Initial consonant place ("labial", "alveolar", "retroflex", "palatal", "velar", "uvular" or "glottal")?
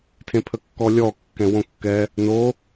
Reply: alveolar